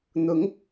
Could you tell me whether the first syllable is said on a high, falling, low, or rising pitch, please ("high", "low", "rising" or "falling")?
rising